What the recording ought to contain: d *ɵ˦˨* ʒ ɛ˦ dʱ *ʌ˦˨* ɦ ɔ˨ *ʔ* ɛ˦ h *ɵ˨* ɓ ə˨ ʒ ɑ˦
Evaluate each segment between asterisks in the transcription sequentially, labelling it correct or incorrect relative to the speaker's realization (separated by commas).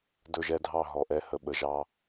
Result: correct, incorrect, correct, incorrect